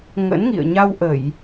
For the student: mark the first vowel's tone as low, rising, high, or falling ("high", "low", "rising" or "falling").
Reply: rising